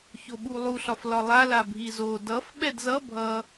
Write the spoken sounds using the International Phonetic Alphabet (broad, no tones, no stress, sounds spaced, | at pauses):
ç o ɓ u lˠ u ɬ ɒ f l ɒ lˠ a l a bʱ i z o d ʌ f ɓ ɛ d z ʌ bʱ ʌ